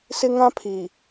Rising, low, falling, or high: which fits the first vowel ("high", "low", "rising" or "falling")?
high